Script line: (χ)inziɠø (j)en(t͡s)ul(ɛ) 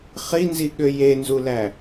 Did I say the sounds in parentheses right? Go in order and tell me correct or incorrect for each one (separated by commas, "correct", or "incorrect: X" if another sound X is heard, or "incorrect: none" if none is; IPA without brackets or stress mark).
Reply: correct, correct, incorrect: z, incorrect: æ